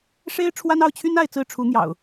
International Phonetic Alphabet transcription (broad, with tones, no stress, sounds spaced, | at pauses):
ʂ e˦ ɪ̯ ʈ͡ʂʰ w a˦ n ɑ˥˨ ʊ̯ t͡ɕʰ y˦ n a˥˨ ɪ̯ t͡s ɹ̩˥˨ ʈ͡ʂʰ u˨˦ n̪ j ɑ̰˨˩ ʊ̯